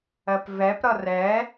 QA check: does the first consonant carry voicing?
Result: no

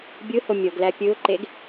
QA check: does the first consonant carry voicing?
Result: yes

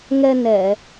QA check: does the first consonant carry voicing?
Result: yes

